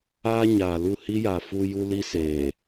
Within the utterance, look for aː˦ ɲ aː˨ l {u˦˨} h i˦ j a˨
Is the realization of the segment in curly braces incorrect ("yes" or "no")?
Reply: no